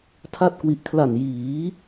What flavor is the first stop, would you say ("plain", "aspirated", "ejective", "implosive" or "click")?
aspirated